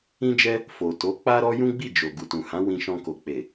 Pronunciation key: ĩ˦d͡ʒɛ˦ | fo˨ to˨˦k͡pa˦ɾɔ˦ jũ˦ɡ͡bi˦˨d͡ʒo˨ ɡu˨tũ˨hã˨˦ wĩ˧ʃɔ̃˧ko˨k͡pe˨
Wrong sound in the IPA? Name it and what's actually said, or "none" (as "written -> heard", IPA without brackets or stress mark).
none